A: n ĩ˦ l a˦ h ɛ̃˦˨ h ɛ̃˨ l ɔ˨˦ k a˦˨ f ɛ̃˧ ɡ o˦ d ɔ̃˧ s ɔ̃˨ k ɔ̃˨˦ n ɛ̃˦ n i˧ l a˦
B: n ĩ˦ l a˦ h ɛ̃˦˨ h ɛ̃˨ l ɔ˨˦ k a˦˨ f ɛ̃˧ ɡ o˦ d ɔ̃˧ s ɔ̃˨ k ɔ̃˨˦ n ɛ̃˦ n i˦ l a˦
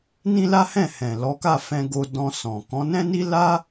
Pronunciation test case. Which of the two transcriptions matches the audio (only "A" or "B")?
B